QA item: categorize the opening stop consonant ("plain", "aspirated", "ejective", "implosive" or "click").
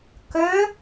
plain